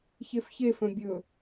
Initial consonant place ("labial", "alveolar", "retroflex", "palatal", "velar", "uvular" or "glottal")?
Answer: palatal